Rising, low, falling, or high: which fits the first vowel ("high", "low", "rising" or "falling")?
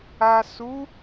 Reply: low